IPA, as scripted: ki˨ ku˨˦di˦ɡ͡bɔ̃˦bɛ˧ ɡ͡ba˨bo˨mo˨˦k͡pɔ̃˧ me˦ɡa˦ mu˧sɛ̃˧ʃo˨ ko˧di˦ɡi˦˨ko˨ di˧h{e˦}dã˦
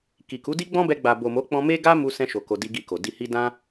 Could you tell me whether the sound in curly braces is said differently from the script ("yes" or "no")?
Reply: yes